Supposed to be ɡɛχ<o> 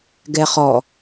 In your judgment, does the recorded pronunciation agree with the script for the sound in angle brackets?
no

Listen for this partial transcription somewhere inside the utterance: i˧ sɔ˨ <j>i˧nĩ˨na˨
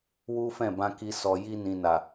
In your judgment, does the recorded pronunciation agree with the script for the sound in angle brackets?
yes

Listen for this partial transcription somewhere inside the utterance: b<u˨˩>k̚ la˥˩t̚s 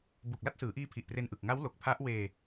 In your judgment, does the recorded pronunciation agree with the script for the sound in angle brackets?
yes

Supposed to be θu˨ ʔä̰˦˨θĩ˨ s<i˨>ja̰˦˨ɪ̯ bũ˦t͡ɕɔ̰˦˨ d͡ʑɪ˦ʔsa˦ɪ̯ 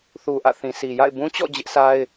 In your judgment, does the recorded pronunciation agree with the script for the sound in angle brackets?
yes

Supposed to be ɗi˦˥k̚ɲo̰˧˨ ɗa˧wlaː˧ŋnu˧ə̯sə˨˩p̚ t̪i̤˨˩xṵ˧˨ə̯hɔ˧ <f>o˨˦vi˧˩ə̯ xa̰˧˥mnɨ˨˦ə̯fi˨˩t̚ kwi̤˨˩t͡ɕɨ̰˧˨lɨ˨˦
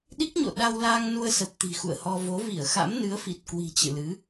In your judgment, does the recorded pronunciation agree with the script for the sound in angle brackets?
no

